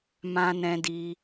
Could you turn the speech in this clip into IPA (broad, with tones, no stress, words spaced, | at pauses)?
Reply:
mã˧nɛ̃˧di˧